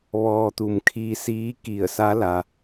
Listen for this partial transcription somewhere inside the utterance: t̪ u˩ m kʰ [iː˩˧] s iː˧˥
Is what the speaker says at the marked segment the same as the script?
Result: no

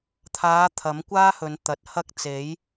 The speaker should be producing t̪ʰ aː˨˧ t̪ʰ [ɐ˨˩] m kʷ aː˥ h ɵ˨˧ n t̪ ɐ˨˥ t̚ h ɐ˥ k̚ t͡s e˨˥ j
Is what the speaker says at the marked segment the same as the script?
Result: no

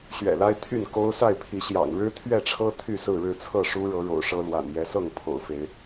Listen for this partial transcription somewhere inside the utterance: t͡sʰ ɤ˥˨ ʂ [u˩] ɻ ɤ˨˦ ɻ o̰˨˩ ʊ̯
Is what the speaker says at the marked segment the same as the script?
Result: no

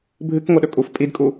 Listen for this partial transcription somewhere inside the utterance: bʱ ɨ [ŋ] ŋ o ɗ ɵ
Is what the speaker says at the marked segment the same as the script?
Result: no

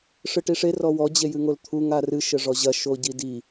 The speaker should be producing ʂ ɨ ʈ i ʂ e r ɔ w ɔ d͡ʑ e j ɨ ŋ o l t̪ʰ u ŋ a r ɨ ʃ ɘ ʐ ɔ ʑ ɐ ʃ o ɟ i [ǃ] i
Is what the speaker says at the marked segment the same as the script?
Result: no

